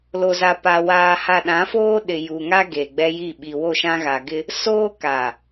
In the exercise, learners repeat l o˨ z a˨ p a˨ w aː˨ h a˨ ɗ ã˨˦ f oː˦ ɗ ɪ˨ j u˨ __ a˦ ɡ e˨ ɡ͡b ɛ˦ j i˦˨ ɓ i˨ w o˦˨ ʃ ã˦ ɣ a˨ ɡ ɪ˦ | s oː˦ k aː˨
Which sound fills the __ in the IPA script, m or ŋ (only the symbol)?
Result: ŋ